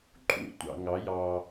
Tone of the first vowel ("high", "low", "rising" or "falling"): high